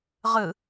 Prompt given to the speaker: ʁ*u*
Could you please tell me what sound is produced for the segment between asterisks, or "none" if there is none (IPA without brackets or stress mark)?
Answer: ɯ